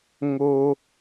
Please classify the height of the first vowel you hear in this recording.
mid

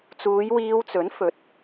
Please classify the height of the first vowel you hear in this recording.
high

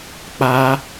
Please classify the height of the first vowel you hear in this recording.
low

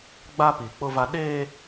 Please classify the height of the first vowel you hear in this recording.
low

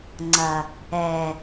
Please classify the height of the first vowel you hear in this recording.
low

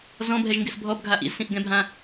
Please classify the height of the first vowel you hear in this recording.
mid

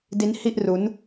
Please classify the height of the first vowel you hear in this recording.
high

